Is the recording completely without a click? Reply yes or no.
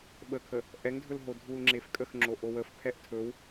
no